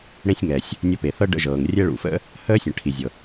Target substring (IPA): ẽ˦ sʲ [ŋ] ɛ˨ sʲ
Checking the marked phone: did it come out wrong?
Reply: no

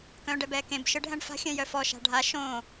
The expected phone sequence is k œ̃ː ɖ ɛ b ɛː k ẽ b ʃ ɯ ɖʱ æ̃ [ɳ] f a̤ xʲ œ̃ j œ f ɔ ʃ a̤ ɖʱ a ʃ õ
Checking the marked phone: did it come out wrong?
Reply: no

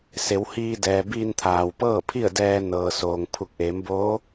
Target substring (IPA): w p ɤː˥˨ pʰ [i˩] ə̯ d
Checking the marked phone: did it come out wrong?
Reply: yes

